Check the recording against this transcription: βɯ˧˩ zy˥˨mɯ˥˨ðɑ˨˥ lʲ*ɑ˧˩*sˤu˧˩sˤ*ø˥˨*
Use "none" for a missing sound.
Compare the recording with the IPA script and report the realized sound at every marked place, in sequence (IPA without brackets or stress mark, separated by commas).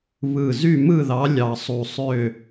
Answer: ɑ˧˩, ø˥˨